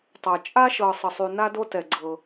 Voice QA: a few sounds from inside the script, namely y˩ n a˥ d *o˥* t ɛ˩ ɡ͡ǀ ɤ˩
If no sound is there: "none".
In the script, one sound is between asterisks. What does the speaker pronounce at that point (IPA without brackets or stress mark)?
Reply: o˥